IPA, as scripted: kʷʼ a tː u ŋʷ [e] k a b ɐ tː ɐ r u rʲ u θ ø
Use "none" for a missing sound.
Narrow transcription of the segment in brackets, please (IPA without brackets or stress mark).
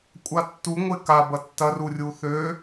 e